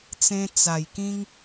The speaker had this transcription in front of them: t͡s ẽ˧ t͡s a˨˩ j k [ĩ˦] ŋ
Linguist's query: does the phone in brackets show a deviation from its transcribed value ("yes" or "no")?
no